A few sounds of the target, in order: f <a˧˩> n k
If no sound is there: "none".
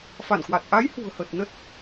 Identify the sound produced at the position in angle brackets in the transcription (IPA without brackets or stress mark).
a˧˩